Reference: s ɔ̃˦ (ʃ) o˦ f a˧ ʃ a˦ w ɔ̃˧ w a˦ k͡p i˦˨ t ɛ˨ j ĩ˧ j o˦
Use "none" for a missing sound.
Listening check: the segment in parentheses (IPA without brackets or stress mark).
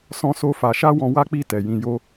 s